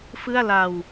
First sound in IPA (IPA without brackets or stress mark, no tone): f